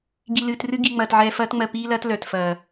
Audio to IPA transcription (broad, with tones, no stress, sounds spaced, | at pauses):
ɡ i˧ l ɨː˧ t r ɨ˦ ɡ i˧ ŋ͡m ɐː˧ t ʕ ɛː˧ f ɐː˦ t ŋ͡m ɜ˧ p iː˦ l ɐː˦ t l œ˨ t f ɐː˨